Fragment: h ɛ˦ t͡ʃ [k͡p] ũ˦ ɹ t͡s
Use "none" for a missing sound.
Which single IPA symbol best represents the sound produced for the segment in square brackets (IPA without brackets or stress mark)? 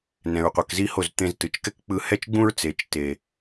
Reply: ɡ͡b